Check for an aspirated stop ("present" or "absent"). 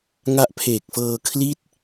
present